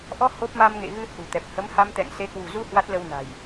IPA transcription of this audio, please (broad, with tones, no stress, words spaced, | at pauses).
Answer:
ʔɔ˧ ho˦˥p̚ ma˧mŋḛ˧˨ɣɨ˧ hṳ˨˩t̪ɛ˨˩p̚ hə˨˦mha˧mt̪ɛ̰˧˨ŋ se˨˦kwṳ˨˩ zu˧ hwa˦˥t̚lə˧wna̤˨˩j